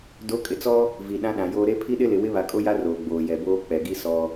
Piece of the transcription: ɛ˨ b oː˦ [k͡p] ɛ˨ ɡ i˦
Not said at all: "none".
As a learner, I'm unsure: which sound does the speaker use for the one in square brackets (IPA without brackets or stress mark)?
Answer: k͡p